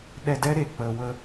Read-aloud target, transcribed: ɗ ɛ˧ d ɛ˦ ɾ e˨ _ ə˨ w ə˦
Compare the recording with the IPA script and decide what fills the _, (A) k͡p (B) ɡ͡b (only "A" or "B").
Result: A